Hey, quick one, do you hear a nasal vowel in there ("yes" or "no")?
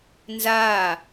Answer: no